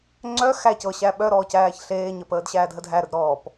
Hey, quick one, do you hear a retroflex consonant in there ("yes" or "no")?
no